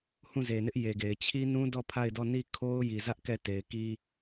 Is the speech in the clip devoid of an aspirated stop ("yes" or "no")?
no